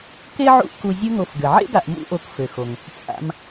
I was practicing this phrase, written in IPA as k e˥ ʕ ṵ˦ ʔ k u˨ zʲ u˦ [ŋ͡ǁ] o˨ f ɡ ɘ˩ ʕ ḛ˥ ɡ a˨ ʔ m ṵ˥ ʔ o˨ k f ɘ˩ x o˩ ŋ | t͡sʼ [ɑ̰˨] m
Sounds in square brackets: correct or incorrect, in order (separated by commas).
incorrect, incorrect